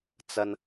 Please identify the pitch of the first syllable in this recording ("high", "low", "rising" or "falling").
high